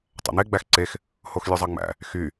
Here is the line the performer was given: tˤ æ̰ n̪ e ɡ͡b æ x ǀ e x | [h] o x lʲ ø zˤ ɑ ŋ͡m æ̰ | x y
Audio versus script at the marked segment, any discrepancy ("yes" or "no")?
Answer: no